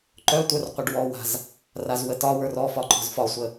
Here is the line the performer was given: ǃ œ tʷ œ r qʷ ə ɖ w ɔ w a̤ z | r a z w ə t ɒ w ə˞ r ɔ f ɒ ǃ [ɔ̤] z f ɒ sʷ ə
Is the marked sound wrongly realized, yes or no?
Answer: no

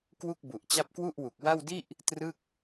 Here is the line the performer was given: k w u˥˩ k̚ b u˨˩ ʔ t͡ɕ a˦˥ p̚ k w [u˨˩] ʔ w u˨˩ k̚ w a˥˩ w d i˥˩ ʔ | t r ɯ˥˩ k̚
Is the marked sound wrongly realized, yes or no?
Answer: yes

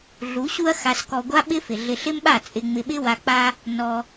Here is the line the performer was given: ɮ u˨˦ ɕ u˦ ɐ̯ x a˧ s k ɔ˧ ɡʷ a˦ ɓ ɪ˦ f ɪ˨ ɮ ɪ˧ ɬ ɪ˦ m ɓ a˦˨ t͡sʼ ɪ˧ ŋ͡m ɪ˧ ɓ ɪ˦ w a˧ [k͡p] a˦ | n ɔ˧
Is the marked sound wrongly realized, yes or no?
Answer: no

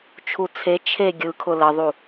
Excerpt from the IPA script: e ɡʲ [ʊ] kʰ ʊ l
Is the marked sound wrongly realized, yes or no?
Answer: yes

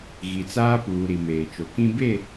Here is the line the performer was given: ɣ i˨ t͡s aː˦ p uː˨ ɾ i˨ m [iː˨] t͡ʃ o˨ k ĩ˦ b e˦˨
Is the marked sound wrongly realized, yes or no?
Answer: yes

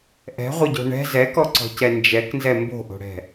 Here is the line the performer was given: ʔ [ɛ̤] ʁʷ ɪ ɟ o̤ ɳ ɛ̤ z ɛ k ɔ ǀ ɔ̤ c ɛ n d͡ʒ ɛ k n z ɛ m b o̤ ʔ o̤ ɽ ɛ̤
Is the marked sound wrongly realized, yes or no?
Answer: no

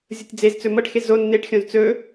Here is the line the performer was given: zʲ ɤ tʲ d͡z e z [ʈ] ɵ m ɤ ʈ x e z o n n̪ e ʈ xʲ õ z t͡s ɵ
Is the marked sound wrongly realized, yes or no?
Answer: yes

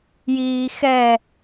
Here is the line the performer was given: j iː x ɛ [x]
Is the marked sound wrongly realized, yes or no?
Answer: yes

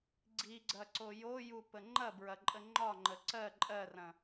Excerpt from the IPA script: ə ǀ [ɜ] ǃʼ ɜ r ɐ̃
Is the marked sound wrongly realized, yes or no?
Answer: no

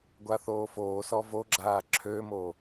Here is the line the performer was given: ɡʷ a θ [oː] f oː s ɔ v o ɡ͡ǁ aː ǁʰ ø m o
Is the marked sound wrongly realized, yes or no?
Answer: no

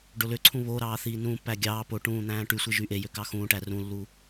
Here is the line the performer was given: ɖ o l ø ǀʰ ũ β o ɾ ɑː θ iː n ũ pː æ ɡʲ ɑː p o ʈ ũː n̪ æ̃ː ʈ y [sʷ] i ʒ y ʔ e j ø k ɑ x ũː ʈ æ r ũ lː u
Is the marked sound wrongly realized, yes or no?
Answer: no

